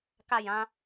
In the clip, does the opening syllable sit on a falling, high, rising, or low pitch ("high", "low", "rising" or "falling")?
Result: falling